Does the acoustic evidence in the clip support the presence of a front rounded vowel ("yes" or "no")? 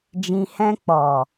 no